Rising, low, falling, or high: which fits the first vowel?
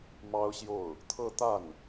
high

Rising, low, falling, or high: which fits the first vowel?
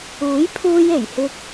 rising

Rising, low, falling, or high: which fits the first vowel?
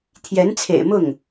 rising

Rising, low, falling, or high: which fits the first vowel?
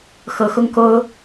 rising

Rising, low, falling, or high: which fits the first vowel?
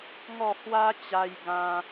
falling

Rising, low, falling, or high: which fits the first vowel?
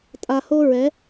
low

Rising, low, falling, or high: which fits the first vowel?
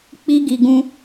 high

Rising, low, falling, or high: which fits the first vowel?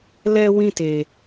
high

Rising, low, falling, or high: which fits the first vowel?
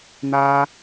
high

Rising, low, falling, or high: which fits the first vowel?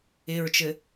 low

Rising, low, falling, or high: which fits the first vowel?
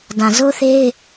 low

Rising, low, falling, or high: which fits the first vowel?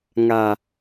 low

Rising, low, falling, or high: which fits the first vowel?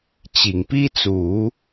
low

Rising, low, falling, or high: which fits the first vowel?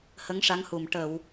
rising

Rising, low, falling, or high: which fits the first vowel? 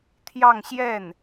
falling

